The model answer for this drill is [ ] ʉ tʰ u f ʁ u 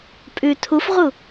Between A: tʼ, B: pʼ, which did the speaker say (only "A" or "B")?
B